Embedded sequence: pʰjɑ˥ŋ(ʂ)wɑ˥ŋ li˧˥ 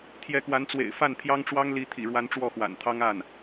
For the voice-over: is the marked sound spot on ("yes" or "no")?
no